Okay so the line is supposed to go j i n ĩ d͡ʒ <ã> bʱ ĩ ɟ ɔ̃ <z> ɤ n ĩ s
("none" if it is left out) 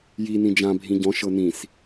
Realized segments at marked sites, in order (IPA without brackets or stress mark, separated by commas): ã, ʃ